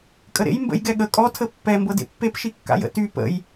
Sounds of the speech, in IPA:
kʼ ə ɾ ḛ j m b ə̰ j ɡ ɛ ɠ ə kʼ ɔ tʰ ə pː ɛ m b ɤ d ḛ pː e p ʃ i kː a̰ j ə̰ t y p ə̰ j

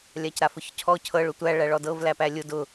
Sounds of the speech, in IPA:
lʲ a c ɾ a f ʊ ç cʰ ɔ cʰ ɤ ɭ ʊ tʷ æ ɭ æ ɭ ɔ d ɤ v l æ p æ lʲ ʊ d ʊ

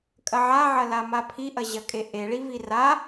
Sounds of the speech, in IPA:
kʼ ɐ ʕ a ʕ ɐ l a m a pʰ i ʔ ɐ ʑ ɐ kʼ e ʔ e ɭ i v i r a

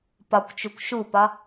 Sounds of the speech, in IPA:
p ɒ kʷ t͡ʃ u kʷ ʃ u p ɒ

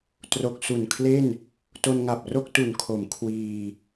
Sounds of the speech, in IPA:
t r o˨˩ k̚ s u˨˩ n kʰ l e˥˩ n | t o˧ n ŋ a˨˩ p̚ r o˥˩ k̚ t u˨˩ n kʰ o˩˦ m kʰ w iː˧

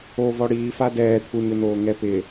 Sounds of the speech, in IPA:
o v ɔ ɽ iː f a d ɛː t̪ʰ u ɲ ʊ n oː ŋ ɛ p ɪ

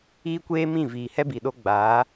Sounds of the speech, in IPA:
iː˦ kʷ eː˦ m ĩ˦˨ v iː˨ h ɛ˦ b i˨ ɗ o˧ ɡ͡b aː˨˦

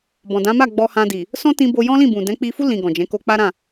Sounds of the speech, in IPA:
b ɔ̃˨ d ã˨˦ m a˦˨ ɡ͡b ɔ˧ h ã˧ d i˨ | s ɔ̃˦ t ĩ˧ b o˧ j ɔ̃˦ l ĩ˦˨ b ũ˨ d ɛ̃˨˦ k͡p i˧ f u˦ l ĩ˧ ɡ ɔ̃˨ d͡ʒ ɛ̃˨˦ k o˧ k͡p a˦ ɾ ã˦˨

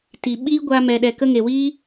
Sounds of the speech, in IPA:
t i˨ ɓ iː˦ ɡʷ a˧ m ɛ˨ ɗ ɛ˨ k ə˧ ŋ e˨ w iː˦

